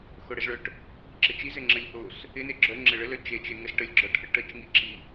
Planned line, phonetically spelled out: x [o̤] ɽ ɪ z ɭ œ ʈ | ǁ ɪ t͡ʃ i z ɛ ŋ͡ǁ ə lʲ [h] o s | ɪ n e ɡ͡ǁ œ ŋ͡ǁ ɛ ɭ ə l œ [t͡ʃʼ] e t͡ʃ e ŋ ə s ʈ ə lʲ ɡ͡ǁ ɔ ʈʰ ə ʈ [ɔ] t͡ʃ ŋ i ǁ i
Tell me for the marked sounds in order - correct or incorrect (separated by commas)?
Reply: incorrect, correct, incorrect, incorrect